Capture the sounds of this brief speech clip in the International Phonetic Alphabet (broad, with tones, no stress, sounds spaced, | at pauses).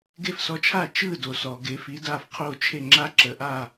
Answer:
ɡ e˥˩ f s ɔ˧ t͡ʃʰ a˥˩ t͡ʃ ɯ˥˩ d o˩ s ɔ˩ ɡ e˩˥ f i˩˥ d a˥˩ f qʰ o˥˩ t͡ʃʰ e˥˩ ŋ͡ǁ a˥ ǁ ə˩˥ ʔ a˥˩